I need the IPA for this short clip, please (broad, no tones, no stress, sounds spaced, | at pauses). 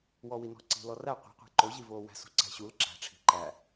w ɔ w i n ɔ̤ ǀ i̤ l ɔ r æ qʷ i̤ qʷ æ̤ ǃ o ʑ i v oː w æ̤ s ṳ ǀ æ̤ ɕ u l ǁ æ̤ ʈ͡ʂʰ i̤ ǃ æ